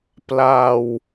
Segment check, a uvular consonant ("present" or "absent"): absent